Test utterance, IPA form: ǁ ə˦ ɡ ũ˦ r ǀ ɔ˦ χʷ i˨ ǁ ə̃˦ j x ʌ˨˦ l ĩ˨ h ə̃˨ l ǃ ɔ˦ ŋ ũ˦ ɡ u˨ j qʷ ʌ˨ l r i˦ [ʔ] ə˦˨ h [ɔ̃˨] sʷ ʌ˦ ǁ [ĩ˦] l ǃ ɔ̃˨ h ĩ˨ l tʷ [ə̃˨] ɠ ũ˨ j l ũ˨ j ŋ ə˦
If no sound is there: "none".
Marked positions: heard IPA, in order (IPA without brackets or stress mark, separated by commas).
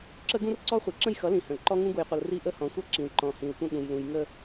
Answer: ʔ, ɔ̃˨, ĩ˨, ə̃˦